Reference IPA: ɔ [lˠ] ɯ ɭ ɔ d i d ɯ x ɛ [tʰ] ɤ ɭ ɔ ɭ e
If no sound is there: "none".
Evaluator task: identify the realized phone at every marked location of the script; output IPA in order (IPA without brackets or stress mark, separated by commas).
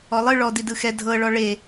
lˠ, dʱ